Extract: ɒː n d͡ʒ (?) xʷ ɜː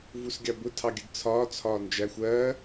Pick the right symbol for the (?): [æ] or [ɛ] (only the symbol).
æ